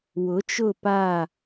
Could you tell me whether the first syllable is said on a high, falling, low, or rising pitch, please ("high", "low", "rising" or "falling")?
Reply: rising